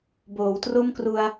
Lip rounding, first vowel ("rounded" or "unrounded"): rounded